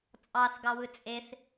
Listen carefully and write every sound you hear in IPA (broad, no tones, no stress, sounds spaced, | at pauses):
t͡sʼ ɑ θ ɡ ɑ w ɯ t͡sʼ e θ